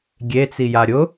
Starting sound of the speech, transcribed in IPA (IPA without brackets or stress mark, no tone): ɡʲ